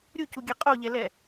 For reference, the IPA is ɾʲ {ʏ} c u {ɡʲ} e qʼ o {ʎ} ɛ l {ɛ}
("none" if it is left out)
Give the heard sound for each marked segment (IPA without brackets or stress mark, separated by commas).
u, ɡʲ, ʎ, ɛ